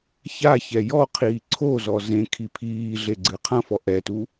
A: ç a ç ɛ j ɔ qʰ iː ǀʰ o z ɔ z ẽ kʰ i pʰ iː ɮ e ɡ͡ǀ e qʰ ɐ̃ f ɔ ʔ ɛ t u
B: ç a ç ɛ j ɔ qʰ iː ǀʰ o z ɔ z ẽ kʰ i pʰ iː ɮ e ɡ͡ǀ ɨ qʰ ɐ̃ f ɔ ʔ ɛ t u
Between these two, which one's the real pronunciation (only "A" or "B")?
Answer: B